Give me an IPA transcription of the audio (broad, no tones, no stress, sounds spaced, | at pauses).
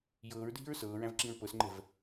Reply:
j ɤː ɹ dʱ i̤ ɹ s ɤː ɹ æ̃ v ǁ ĩ ɹ p ɤ s ŋ͡ǃ ɛ̤ v